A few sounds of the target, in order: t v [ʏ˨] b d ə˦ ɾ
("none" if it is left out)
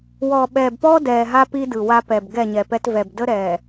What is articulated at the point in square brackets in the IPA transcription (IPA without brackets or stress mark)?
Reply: ɛ˨